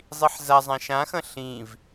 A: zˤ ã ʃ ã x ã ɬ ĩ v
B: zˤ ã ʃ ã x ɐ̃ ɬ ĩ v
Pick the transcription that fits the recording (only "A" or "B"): B